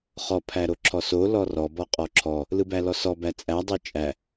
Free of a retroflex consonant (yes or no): yes